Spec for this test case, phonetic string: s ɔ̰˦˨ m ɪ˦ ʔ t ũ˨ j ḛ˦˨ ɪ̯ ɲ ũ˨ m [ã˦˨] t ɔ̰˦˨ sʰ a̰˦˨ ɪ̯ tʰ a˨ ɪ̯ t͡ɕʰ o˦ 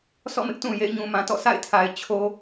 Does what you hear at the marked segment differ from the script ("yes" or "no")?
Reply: yes